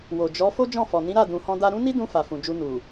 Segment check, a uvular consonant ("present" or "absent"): absent